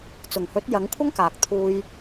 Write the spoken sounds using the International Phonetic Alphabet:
t͡s ʊ˨˩ ŋ h ɵ˨˥ t̚ j ɐ˨˥ ŋ kʷʰ ɐ˥ ŋ k aː˨ k̚ t̪ʰ uː˧ j

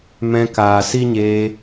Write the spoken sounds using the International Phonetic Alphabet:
m ɛ̃˧ k aː˨ s i˦ ɲ eː˧

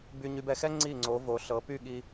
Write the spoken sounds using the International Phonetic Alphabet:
b y˧ ɲ y˧ b ɛ˩˧ x ɛ˥ ŋ͡ǀ i˧˩ ŋ͡ǀ o˩˧ v o˩˧ ɬ ɤ˩˧ p y˥˧ ɠ i˧

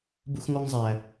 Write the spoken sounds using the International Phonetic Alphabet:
b ṵ˦ x ŋ ɔ˦ ŋ zˤ æ˦

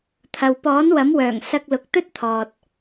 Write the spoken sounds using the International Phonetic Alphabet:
t̪ʰ ɐ˨ w p ɔː˨˥ n w ɐ˨˥ m w œː˨˩ ŋ s ɐ˧ k̚ l ʊ˨˥ k̚ t̪ ɵ˥ t̚ t̪ʰ ɔː˨ t̚

